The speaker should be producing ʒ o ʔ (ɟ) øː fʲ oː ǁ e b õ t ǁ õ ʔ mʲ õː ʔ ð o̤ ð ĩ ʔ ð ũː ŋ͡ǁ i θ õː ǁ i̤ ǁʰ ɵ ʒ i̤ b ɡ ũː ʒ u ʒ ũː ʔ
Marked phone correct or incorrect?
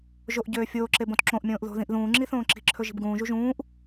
correct